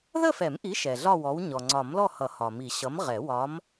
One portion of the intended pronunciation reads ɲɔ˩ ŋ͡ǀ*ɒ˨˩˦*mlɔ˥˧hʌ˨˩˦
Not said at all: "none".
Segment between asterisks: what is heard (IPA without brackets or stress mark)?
ɒ˨˩˦